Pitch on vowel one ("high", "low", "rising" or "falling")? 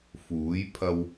rising